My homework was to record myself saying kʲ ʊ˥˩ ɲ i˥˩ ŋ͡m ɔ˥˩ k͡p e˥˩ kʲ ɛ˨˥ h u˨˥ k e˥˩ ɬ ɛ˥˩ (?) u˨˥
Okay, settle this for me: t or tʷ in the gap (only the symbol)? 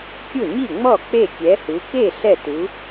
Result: t